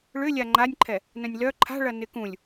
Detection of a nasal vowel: present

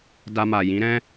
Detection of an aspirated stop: absent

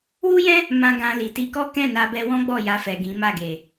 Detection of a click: absent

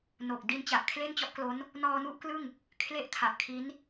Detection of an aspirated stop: present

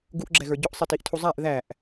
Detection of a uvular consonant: absent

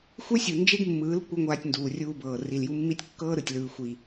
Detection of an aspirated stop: absent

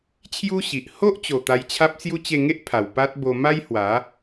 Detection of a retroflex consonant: absent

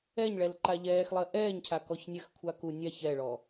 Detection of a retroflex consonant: present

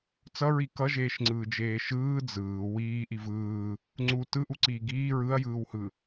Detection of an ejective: absent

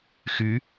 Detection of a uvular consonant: absent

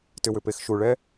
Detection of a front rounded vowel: present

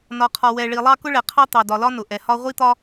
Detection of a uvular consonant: present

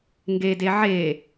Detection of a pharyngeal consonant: present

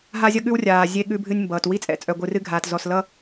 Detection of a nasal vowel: absent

